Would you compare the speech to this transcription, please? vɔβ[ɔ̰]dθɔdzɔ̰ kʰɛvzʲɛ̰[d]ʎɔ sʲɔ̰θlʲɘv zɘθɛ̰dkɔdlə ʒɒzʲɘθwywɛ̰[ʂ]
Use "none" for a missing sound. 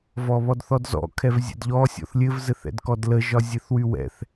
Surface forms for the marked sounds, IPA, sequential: ɔ, d, θ

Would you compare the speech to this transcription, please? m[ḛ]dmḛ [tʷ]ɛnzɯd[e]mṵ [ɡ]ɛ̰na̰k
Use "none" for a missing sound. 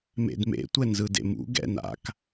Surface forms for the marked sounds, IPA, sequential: ḛ, tʷ, ḛ, ɡ

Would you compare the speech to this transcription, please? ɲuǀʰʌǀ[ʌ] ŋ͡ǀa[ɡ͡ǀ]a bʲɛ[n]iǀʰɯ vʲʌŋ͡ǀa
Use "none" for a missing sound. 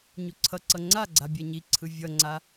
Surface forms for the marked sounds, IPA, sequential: ʌ, ɡ͡ǀ, ɲ

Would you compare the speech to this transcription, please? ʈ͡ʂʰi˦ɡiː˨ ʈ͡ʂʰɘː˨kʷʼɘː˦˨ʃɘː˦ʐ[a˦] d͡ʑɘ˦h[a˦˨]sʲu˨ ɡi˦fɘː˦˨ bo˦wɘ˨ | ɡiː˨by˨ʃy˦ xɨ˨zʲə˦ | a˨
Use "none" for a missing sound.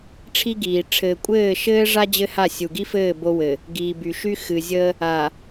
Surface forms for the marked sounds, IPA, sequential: a˦, a˦˨

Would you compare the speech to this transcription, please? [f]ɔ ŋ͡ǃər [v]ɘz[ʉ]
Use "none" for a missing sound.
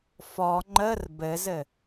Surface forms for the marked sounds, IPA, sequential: f, b, ɘ

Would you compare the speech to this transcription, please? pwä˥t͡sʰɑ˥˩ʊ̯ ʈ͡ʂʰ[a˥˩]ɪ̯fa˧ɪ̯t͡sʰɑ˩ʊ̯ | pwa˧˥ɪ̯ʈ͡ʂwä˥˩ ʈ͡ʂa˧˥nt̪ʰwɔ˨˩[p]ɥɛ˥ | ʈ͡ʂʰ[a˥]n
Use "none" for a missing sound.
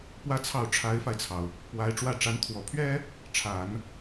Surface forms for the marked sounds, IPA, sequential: a˧˥, pʰ, a˨˩˦

